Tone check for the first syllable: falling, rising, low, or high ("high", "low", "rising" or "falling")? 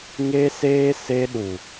high